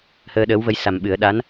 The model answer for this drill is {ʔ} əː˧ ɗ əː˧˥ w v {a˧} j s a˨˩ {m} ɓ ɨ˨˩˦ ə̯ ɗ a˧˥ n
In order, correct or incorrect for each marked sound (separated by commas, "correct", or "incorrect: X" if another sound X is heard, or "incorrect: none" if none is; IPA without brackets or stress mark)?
incorrect: h, incorrect: ə˧, correct